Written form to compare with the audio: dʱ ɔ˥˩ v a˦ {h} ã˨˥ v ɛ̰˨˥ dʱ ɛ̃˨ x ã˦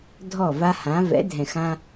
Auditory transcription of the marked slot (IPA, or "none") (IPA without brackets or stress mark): h